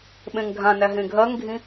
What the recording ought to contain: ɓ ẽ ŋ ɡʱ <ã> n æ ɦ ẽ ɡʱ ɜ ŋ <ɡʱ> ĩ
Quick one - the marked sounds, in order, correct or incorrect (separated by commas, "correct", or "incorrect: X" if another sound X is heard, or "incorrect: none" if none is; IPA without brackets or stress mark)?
correct, correct